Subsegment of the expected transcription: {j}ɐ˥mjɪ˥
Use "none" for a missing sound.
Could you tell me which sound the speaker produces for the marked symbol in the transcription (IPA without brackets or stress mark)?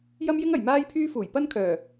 j